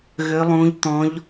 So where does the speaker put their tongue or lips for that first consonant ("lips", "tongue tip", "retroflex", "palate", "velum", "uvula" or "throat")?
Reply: velum